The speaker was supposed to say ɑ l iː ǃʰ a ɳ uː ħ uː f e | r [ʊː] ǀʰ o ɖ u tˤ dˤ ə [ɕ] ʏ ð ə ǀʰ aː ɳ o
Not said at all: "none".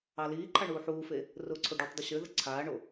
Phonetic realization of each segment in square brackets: ʊː, ɕ

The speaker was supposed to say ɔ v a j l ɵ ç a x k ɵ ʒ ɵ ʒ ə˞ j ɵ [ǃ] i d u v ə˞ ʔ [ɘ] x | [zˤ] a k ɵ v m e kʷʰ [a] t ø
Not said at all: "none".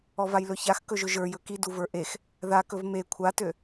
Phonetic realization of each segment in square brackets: k, e, ð, a

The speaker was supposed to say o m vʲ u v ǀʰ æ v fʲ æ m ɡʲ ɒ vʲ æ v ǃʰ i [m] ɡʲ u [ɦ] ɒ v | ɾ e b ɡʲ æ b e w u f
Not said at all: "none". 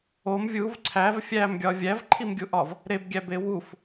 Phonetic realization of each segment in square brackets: m, ʔ

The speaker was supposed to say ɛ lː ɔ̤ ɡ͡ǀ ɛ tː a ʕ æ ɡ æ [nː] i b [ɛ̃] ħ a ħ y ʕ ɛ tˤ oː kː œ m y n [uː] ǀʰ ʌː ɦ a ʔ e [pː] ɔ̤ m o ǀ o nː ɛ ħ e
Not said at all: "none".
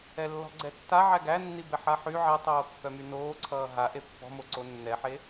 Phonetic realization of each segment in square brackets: nː, ɛ, oː, pː

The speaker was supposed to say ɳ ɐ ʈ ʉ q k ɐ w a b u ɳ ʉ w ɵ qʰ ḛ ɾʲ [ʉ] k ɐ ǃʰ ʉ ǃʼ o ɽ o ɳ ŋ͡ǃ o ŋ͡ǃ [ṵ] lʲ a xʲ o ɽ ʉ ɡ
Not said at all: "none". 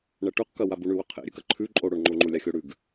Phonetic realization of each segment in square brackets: ʉ, u

